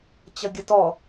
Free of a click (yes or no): yes